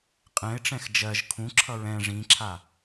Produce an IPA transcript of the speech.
qʼ ɛ̃ ɪ̯ ʈ͡ʂ ɛ̃ x d͡ʒ ɜ ʒ kʰ ũ ǁʰ ʌ ɹ ɛ̃ ʐ ĩ ǁʰ a

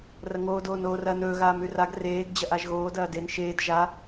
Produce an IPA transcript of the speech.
r ɐ ŋ oː d oː n oː r ɐː n ɵː ɣ aː m ʉ r a ɡ r eː ɡ d͡ʑ ɐ ʔ a ʒ ɣ oː d ɐː d e n ʃ eː d ʒ a

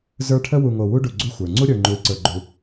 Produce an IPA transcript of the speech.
z ə˞˦ ʈʰ ə˦ w u˨ ŋ o˨ w u˦ ɖ u˨ ɡ͡ǀ u˦ xʷ ə˞˩ ŋ͡ǀ u˦ ɾʲ ə˞˨ ŋ͡ǃ u˨ i̯ ǀ ə˞˨ ɡ͡ǃ u˨

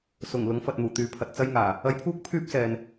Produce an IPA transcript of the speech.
s ʊ˨˩ ŋ l ʊ˨˥ ŋ f ɐ˨ t̚ n̪ uː˨˩ t̪ yː˨˧ pʰ ɐ˨ t̚ t͡s ɐ˥ j ŋ aː˨˩ | ɐ˧ j pʰ uː˥ k̚ pʰ yː˥ p̚ s ɛː˨ n

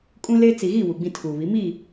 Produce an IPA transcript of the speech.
kʼ ũ˦ l e˦ t͡s i˨ ɣ i˦˨ w u˨ ɡ͡b ĩ˦ tʰ uː˨ β i˨˦ m i˦˨

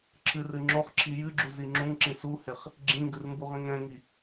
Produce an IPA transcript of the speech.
ǁʰ ɨ r ɨ ŋ͡ǁ o χ ǁʰ i j ɨ ɡ͡ǁ u z i ŋ͡ǁ ũ ŋ ǁ ĩ s u h e χ | ɡ͡ǁ ĩ ŋ ɡ ɨ r m b u ʁ ĩ ŋ ɛ̃ ŋ i

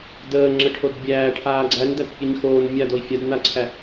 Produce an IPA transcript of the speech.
d əː ŋ͡ǁ ə ʈʰ o d bʲ æː ʈʰ aː ɡ͡ǀ æ n d æ t pʲ ɘ ɲ x oː n mʲ a d o i̯ fʲ a d n a ǀʰ æ

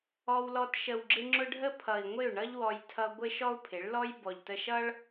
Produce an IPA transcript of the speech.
ɔ˧ w l ɔ˧ t ʃ ə˨ w ɡ͡ǁ ɪ˧ ŋ͡ǁ ʊ˧ ɖʱ ə˦ pʰ ʌ˨ i̯ ŋʷ ɪ˦˨ u̯ ɳ ʌ˦ ʎ w ɔ˧ j tʰ ʌ˧ ɡʷ ɪ˦ ʃ ɔ˦ u̯ pʰ ɪ˨˦ ɭ l ɔ˦ j b ɔ˨ ʎ t ə˧ ʃ ʌ˦ ɭ

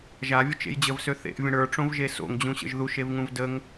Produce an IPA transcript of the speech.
ʒ a vʲ ə t͡ʃ ḛ j d͡ʑ ə v s ø θ ḛ ʔ vʲ ə̃ ɽ ə˞ ʈ͡ʂ õ v ʒ e s o̰ ŋ d͡ʑ ũ ɕ ə̰ ʒ ð u ʃ e v ŋ ũ v d ə ŋ

